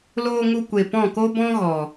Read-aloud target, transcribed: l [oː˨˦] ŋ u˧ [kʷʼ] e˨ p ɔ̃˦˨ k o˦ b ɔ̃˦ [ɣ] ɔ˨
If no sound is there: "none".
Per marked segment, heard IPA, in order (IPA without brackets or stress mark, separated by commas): oː˧, kʷ, ɣ